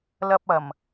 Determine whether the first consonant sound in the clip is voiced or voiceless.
voiced